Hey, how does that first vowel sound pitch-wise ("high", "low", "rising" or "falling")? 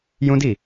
high